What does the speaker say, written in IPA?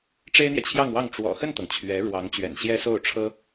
ʈ͡ʂ e˥ ɪ̯ n̪ j ɛ˨ t͡ɕʰ j ɑ˥˧ ŋ w ɑ˥˩ ŋ ʈ͡ʂ w ɔ̰˨˩ x ə˥˩ n t̪ ɤ˩ ŋ t͡ɕʰ ɥ ɛ˧˥ ɻ w ɑ˧˥ ŋ t͡ɕ ɥ ɛ̰˨˩ n ɕ j ɛ˥ s o˥˩ ʊ̯ ʈ͡ʂʰ ɤ˥

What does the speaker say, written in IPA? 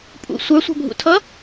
pʼ ṵ sʷ ə˞ sʷ æ̤ bʱ ṵ tʰ ʌ

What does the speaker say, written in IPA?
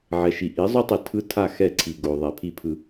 ʕ ɛ˨ ʃ i˨ ʔ i˨˦ zˤ o˦ tˤ i˨ tʰ ɯ˦ tʰ a˦˨ x ɛ˦˨ ǀʰ i˨ ɡ o˨ ðˤ ɛ˨ pʰ i˦˨ pʰ ɯ˨

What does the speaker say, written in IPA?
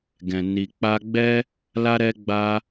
ɡ ɛ̃˨ n i˨ k͡p a˧ ɡ͡b ɛ˦ | l a˧ ɾ ɛ˧ ɡ͡b a˧

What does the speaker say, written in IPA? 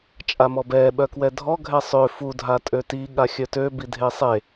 t͡ʃʼ a m ɔ b ɛː ɓ œ k w ɛ dʱ ɔ ɡʱ ɛ sˤ ø f u dʱ a tʼ ø t i ɠ a xʲ œ t ø b i dʱ e sˤ e

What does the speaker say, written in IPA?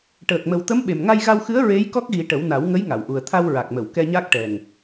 ʈ əː˨˩ k̚ m ə˨˩ w t̪ ə˧˥ m ɓ e˨˩ m ŋ a˧ j ɣ a˧ w x ɨ˧˥ ə̯ ɹ e˧˥ j k ɔ˦˥ k̚ ɣ i˨˩˦ ʈ ə˨˩˦ w n a˨˩˦ w ŋ ə˧˥ j ŋ a˨˩˨ w ʔ u˨˩ ə̯ t̪ʰ a˧ w ɹ a˨˩ k̚ m ə˨˩˨ w k ɛ˧ ɲ a˦˥ k̚ ʈ ɛ˨˩ ŋ

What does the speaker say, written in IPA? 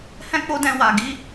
h ɛ̃˦ k͡p o˦ d ɛ̃˧ w a˨ ɡ i˧

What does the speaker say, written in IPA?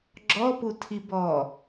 ɡ͡ǁ ɔ p u tʰ i b ɔː

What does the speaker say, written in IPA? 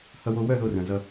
h ʌ˦ w o˦ w œ˦˨ ð o˦ r œ̃˨ z ʌ˦

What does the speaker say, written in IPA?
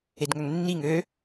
e d ŋ œ ŋ nː i ŋ ø

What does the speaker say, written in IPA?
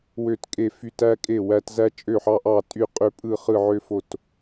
w ø˦˨ t kʼ e˦˨ f y˦ t æ˦ kʼ e˦˨ w æ˦ t z æ˦ t͡ʃʼ ø˦˨ ħ ɑ˦ ʔ ɑ˦˨ tʼ y˦˨ qʼ ø˦˨ pʼ ɯ˦˨ χ ɯ˦˨ ʕ ø˦ f o˦˨ t

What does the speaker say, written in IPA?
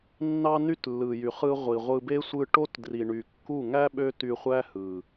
nː ɑ˧ n y˦ t lː ɯ˨ j y˨ χ ɯ˧ ʁʷ i˨ ʁʷ ɯ˧ b e˦ sʷ ɯ˧ ʈ o˦ t d r i˨ ɳ y˨ kː u˦˨ ŋ æ˦ ɓ ø˦ t y˧ χʷ æ˦ h ɯ˨

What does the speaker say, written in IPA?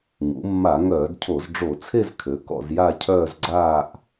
ŋ ṵ˩˧ mː a˧˩˧ ŋ œː˧˩˧ d cʰ o˧˩˧ z ɖ͡ʐ o˧˩˧ t͡sʰ e˥˧ z kʰ ø˩˧ k ɔ̰˧ z j a˥˧ cʰ œː˥˧ z ɡ͡ǀ aː˥˧ ʔ

